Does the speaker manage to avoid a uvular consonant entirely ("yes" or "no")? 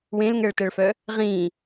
no